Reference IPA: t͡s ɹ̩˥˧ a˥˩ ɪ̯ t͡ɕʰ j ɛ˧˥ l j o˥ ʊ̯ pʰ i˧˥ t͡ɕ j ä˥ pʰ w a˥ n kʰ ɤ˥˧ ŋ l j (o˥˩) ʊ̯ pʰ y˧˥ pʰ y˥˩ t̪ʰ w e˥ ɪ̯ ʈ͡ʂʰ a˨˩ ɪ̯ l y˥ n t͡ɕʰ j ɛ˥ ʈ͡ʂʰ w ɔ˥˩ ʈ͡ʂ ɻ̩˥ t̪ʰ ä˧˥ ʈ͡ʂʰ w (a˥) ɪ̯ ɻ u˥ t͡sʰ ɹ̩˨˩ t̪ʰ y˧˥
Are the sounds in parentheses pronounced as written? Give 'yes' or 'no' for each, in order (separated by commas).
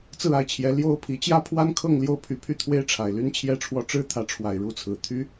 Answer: yes, no